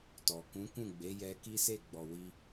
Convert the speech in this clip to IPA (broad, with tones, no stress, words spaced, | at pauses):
tɔ˨ kũ˨˦kũ˦˨ɡ͡be˨˦ jɛ˧ki˦se˦˨ɡ͡bɔ˨ wi˧